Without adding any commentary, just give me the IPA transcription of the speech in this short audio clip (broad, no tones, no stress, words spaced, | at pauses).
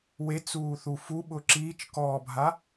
wet͡suːθu fuɓʊ ǁiːt͡ʃkɔːbʱa